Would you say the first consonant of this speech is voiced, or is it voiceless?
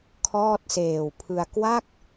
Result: voiceless